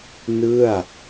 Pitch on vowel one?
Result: falling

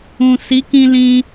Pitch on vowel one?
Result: low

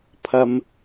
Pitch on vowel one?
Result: low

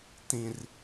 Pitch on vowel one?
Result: high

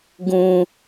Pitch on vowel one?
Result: high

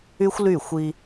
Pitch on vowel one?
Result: high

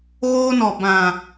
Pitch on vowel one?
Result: high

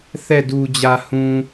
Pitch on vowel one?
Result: falling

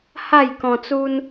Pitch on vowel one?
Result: falling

